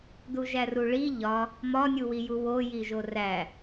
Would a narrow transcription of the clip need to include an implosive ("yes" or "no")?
no